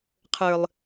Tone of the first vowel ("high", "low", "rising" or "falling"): low